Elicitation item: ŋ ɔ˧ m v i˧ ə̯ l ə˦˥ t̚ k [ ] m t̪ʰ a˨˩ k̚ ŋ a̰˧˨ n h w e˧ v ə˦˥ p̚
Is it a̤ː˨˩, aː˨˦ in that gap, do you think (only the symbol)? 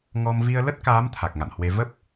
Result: aː˨˦